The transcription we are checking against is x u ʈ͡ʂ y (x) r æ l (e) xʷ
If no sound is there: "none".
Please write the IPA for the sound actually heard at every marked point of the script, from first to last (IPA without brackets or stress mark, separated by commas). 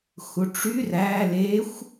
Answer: none, e